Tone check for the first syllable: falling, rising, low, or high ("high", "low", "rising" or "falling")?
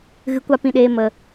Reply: low